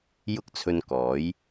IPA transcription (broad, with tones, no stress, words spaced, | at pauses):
jʊ˥k̚t͡sʰɵ˧n kɔː˨˥j